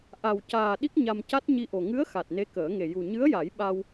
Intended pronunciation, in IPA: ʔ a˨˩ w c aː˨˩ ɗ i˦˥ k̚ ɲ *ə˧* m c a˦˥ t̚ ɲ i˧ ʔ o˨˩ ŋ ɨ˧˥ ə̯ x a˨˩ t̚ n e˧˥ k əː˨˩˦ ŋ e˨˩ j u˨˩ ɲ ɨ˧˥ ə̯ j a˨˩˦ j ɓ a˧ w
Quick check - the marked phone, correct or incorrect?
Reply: incorrect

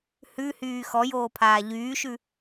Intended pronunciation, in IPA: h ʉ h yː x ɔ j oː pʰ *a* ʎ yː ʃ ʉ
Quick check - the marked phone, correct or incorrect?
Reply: incorrect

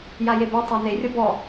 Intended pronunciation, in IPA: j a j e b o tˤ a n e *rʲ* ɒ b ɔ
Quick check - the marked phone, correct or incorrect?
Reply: correct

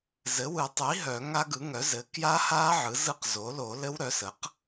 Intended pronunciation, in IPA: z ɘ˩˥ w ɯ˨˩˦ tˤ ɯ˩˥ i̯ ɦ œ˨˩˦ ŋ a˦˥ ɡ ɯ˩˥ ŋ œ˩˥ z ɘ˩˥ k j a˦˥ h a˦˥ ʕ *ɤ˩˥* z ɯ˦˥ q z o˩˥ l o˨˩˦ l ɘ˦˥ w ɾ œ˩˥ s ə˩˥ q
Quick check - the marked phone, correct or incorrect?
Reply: incorrect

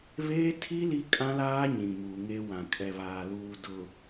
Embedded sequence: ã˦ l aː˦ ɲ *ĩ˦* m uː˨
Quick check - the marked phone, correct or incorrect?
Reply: incorrect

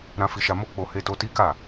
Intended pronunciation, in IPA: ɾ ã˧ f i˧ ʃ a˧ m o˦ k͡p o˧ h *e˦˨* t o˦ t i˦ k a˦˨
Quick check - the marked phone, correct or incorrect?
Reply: incorrect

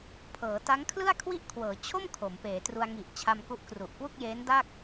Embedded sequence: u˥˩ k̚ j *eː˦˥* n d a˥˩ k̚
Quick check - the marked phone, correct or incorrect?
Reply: correct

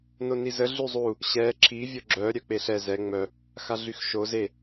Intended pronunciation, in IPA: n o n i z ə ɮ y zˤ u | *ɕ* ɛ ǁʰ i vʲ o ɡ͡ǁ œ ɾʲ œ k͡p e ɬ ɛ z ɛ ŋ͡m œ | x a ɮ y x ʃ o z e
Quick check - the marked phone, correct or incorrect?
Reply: correct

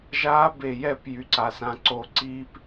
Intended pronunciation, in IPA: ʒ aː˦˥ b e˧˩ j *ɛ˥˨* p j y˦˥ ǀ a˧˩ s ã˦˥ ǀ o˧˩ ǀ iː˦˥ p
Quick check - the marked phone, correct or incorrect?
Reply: correct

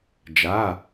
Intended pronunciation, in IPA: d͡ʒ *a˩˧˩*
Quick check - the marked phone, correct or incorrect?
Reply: correct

